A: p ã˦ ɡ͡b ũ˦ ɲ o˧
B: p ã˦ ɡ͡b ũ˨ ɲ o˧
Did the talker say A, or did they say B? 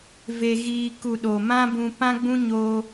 A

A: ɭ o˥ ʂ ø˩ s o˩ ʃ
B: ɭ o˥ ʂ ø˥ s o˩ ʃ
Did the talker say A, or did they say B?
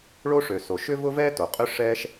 A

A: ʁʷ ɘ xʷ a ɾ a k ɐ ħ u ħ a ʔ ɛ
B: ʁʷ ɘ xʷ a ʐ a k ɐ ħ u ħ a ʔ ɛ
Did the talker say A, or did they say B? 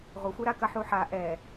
A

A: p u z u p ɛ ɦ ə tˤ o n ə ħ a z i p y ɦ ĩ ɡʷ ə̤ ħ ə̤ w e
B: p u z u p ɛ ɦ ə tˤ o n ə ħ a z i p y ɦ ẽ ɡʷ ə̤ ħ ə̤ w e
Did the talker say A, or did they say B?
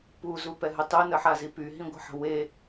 A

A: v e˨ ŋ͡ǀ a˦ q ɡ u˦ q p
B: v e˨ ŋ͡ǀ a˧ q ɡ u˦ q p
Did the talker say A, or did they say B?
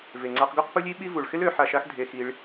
B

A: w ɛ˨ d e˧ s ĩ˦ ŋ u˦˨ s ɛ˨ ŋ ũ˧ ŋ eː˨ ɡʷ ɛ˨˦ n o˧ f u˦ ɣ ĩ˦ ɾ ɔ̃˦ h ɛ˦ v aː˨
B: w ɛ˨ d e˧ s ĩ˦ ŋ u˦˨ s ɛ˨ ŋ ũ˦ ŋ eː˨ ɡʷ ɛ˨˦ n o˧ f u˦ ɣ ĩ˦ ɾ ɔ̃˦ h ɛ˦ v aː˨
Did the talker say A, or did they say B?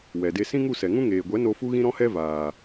B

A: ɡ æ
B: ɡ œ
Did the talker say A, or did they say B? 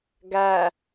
A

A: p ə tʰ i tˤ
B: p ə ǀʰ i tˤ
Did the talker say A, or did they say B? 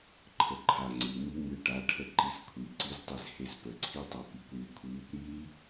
B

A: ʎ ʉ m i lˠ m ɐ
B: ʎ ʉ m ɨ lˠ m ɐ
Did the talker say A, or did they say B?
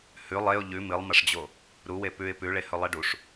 B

